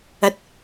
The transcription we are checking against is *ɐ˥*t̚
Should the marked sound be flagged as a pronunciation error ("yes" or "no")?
no